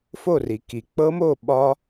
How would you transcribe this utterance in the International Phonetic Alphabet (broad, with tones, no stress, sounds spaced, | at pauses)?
f o˥˨ r i˩ k i˩ k͡p ɤ˦˥ m o˥˨ ɓ ɒ˦˥